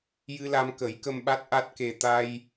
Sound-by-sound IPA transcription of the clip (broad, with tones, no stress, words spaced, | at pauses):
jɨ˧la˧mkə˨˩˦jkə˧m ɓa˦˥t̚ʔa˦˥t̚ke˧ t̪a˧j